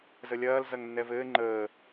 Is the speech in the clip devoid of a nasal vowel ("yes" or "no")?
yes